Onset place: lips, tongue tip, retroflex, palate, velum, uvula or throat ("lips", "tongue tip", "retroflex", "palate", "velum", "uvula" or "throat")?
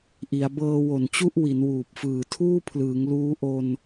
throat